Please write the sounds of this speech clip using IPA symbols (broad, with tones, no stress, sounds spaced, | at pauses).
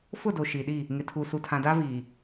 f ʊ˦˨ d o˨ ʃ i˨ ɗ i˦˨ | ŋ ɪ˨ tʰ u˨ s u˨ tʰ ã˨ d a˦ v iː˨